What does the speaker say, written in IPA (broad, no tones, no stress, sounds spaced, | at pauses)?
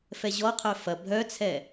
f ɛ ʑ ɔ qʰ œ f ɐ bʱ œ t͡sʰ ɛ